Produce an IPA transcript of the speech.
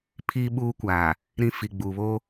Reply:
pʰiː˦ ɓuː˦kʷaː˨ | ɾĩ˦fi˨ɡ͡buː˨βo˦

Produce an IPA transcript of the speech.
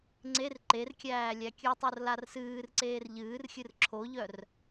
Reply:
ŋ͡ǀer ǃerkʲæː lʲækʲɨtˤor larsɨːrǀeːr ʎɨːrxʲɨr ǁʰoʎœr

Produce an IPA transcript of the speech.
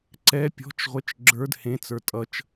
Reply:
ǀɛ pʲɔ̤t͡ʃʁʷɛt͡ʃ ɡ͡ǁə˞d hẽt͡sə˞ tʼʌt͡ʃ

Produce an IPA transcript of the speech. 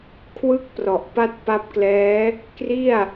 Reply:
kʰwɯ˥˩k̚ prɔ˨˩ʔpa˥˩t̚ pa˦˥p̚klɛː˦˥ | kri˥˩a̯

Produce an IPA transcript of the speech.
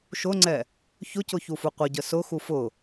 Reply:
ʃʊŋ͡ǀɛ | çʊcʊçufu qʷəɟə sʊxu fʊ

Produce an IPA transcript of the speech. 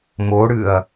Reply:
moɽɨɐ̯

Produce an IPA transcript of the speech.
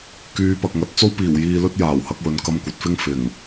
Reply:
kyː˨˧pɐ˨k̚ŋɐ˨t̚ t͡so˥wpiː˨˩w jiː˨lɵ˧t̚ jaː˨˩whɐ˧k̚wɵ˨n kɐ˧mkʷɐ˨t̚fɪ˥ŋ fɪ˨˩ŋ

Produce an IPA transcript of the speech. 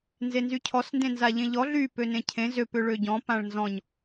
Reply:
nzenzycʰɔs ndẽnzaʎẽʎɔ ɮy pønẽcʰẽ zø pʏɭøɟɔ̃ pãɭnzɔ̃ɲ

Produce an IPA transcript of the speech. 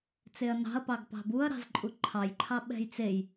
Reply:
t͡seɐ̯nɑ̤ɐ̯ pɑɡpɑ̤buɐ̯ɾɑ̤z ǃʼuǃʰɑjǃʰɑ ɓɛ̤jt͡sej

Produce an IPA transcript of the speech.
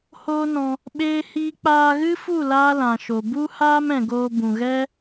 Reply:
hoː˦nɔ̃˧ | ɓeː˦hiː˦ k͡paː˧ɣɨ˦fu˦˨ laː˦lã˨ʃo˨ bu˦haː˦m ɛ̃˨ɡoː˧bũ˨ɣɛ˦

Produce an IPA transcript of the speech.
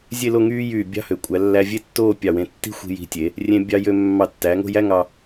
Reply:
zʲe˥˧lo˥˧ŋyː˥jyː˧˩ bʲɑ̤˥˧hø˩˧ kʷʼæ˩˧lːæ˧ vʲe˥tːoː˥˧ pʲɑ˧˩wẽ˧ tːi̤˥xʷi̤˧ji̤˧tʲe˩˧ | rʲẽ˧bʲɑ˧jø˧ mːɑ˧˩tːæ˩˧ŋo̤˥˧jæ˥ ŋɑ˧

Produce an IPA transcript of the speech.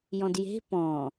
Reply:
jɔ̃dje̤ pɔ̃

